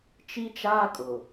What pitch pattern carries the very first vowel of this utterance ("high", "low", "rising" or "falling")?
high